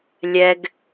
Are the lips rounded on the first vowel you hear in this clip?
no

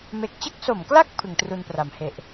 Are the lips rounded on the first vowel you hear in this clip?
no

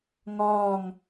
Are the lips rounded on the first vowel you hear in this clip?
yes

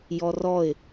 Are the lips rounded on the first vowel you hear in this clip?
yes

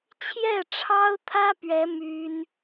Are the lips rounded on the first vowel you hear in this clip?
no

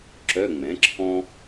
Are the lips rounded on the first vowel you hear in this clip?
yes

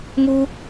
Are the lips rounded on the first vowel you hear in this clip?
yes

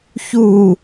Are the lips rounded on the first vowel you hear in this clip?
yes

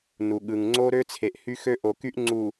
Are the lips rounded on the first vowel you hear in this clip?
yes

